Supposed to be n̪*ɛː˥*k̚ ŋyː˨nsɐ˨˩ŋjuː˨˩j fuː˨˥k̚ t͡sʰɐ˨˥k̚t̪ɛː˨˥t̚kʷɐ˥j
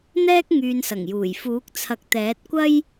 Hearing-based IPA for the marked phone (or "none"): ɛː˥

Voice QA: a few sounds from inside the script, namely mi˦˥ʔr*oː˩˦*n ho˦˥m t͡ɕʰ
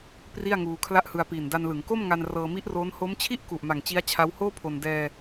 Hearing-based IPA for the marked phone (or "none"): oː˦˥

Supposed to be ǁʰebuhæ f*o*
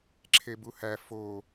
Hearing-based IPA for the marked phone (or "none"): o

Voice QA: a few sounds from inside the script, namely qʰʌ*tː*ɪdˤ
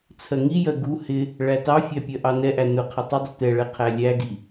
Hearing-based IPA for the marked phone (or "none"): tˤ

